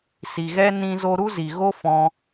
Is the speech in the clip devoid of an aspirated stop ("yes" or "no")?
yes